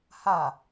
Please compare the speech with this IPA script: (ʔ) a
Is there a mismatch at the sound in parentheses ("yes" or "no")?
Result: yes